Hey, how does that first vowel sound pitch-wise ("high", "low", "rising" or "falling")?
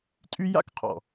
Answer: high